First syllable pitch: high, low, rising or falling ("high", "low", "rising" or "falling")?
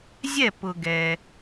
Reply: falling